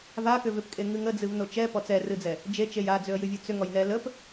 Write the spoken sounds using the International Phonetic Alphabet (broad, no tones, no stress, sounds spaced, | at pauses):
v a k ʏ v ʏ p kʼ e ŋ ɨ ŋ ə d͡z ɨ v n o t͡ʃ ɛ p ɔ t͡s ɛ r ɨ d͡z ɛ | d͡ʒ e t͡ʃ e j a d͡z ʏ ə̯ j ɨ vʲ ɨ t͡s ʏ ŋ ɔ j n ɛ l ə p